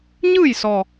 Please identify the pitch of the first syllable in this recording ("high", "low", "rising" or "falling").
falling